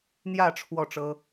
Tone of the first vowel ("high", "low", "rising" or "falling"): falling